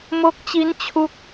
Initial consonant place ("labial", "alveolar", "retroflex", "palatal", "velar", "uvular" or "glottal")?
labial